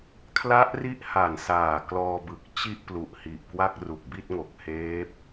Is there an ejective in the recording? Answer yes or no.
no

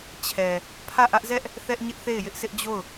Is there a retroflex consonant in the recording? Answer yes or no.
no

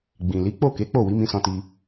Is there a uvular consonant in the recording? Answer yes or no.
no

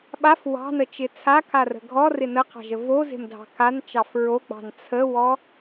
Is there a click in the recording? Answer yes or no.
no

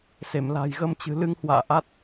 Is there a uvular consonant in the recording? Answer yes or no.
no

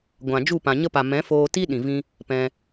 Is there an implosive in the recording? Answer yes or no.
yes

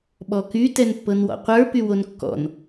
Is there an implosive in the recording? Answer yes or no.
yes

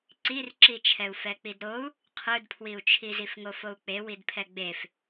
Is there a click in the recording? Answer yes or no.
yes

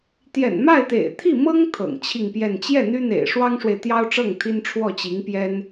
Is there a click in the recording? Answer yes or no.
no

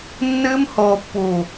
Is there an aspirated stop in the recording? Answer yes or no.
no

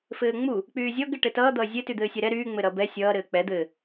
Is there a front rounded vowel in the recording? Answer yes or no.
yes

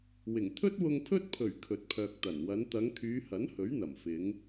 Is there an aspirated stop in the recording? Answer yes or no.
yes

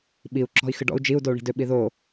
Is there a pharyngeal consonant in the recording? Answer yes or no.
no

